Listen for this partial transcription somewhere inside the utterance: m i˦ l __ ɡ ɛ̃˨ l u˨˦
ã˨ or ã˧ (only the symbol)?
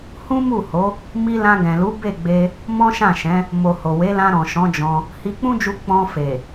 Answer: ã˧